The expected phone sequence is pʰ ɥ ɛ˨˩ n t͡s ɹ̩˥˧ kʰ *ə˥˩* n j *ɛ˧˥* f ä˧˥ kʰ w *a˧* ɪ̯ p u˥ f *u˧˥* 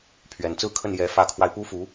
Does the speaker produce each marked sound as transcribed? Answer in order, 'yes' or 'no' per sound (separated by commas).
yes, yes, yes, yes